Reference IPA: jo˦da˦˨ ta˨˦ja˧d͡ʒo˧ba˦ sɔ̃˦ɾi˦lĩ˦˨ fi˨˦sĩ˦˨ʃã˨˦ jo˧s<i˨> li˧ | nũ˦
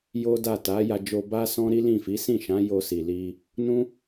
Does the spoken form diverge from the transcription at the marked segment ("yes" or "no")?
no